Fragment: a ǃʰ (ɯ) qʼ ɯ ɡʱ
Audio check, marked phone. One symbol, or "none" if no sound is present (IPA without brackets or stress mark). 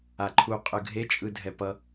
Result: u